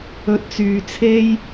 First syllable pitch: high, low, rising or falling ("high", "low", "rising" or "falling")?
rising